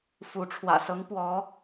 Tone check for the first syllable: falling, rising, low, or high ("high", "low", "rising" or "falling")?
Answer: rising